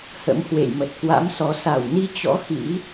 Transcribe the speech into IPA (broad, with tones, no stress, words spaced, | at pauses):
hə̰˧˥mhwḛ˧˨j mə˨˩t̚kwa̰˧˥msɔ˨˦ sa˧˩wni˧t͡ɕɔ̰˧˥ xḭ˧˥